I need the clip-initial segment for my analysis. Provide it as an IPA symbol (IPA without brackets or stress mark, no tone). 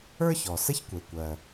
ə˞